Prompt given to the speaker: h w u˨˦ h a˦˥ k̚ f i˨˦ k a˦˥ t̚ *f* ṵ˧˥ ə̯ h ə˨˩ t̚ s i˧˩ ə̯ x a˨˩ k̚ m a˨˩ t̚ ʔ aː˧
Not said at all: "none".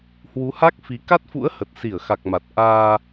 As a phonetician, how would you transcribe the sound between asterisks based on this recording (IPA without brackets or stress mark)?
f